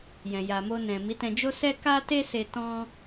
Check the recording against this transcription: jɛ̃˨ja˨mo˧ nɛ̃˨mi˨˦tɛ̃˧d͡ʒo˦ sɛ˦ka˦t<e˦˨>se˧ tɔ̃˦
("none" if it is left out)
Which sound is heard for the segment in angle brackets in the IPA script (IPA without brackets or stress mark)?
e˦